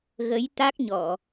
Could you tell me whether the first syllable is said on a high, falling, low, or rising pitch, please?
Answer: rising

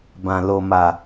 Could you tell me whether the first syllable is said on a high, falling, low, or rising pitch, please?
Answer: low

